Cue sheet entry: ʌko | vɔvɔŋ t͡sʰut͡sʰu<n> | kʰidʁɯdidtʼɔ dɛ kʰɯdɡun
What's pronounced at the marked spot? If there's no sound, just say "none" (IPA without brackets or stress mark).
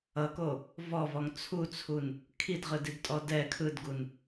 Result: n